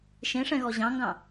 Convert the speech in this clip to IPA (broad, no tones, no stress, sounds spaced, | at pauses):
ʃ ẽ ʂ ɛ̃ ɣ ɔ ʑ ɑ̃ ŋ ɡ ɑ̃